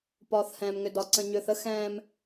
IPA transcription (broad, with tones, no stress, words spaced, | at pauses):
pɒː˨θhɛ̃ː˨mŋʏ˨ dɒ˨ ǀə̃˨ɲʏː˨θə˦ xɛ̃ː˦m